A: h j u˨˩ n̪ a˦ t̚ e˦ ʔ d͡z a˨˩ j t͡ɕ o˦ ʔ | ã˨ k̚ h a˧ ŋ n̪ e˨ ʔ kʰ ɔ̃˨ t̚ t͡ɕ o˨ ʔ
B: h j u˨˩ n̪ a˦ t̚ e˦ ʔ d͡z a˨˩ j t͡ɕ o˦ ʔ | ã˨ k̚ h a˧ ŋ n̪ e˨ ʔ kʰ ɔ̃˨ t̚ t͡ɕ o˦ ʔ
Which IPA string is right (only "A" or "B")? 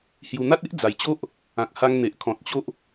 B